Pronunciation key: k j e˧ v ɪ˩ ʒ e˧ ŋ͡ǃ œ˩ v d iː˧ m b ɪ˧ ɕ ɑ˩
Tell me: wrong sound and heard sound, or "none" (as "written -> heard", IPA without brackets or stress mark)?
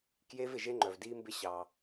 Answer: none